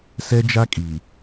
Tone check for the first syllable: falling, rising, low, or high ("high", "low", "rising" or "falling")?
high